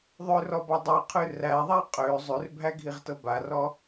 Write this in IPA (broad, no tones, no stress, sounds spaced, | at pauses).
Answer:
ðˤ ø r ɔ b ɔ dˤ æ qʰ ʉ r æ ðˤ æ qʼ ø zˤ ʉ r bʱ æ ɡʱ i ʁ t ɤ b a r ɔ